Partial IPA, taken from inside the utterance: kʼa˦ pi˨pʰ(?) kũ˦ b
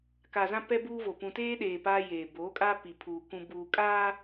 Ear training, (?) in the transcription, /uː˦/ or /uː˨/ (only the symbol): uː˨